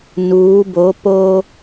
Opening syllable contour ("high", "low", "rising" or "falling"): rising